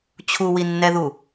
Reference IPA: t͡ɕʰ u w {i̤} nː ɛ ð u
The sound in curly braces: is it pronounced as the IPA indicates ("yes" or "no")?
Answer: no